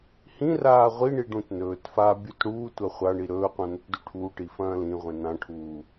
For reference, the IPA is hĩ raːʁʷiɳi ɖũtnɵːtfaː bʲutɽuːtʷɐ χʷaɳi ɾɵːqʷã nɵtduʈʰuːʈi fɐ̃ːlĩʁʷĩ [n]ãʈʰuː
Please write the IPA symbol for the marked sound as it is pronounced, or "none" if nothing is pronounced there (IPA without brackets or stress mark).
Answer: n